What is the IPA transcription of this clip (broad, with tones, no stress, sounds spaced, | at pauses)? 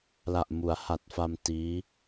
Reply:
l a˨˩ ʔ m u˩˦ a̯ h a˨˩ t̚ f a˧ m t iː˦˥